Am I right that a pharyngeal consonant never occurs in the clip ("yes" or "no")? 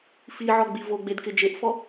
no